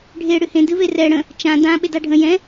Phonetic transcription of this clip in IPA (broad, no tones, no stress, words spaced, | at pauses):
ɖʱe ɽɨhẽ dɨverɛ ɽə̃ | t͡ʃã dã ɓedaɖʱə̃ jɛ̃